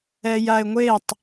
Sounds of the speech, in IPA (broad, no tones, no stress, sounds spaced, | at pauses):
ɛ j a ɪ̯ ŋʷ e tˤ